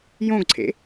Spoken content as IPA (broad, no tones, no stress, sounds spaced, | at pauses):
j õ ɡ ǀʰ ḛ